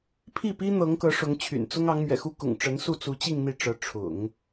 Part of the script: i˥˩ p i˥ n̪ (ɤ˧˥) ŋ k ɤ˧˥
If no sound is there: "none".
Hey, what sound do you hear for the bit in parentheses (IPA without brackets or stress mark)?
ɤ˧˥